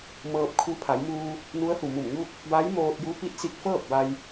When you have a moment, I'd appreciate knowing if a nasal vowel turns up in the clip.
no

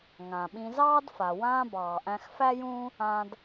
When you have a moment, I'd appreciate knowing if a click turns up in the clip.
no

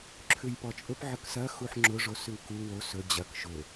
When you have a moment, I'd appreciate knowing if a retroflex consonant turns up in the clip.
yes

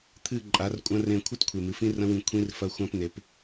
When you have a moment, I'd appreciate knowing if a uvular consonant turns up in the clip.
no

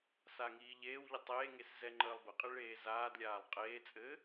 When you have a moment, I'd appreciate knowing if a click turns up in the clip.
yes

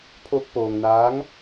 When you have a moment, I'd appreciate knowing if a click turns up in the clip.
no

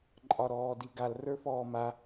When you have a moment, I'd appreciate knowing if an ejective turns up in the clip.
yes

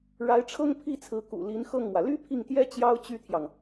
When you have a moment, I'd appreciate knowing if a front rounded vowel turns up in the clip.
yes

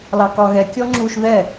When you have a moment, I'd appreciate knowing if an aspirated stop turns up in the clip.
no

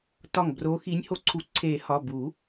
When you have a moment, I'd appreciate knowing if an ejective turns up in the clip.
no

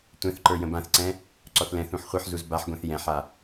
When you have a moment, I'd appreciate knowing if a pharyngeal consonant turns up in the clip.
yes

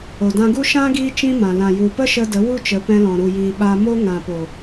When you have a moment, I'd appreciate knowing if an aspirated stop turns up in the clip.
no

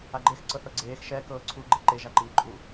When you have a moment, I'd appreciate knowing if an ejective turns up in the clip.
yes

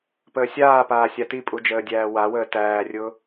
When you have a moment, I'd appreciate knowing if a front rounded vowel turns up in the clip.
no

